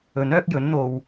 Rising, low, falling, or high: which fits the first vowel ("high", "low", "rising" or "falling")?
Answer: rising